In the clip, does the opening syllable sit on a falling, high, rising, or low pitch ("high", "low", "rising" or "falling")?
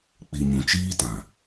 low